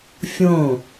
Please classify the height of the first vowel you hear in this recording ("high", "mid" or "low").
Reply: mid